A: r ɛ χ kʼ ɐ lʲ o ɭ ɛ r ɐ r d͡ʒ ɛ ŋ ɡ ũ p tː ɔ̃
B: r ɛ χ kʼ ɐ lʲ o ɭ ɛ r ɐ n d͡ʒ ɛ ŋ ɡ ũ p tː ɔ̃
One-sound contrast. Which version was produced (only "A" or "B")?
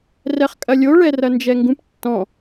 B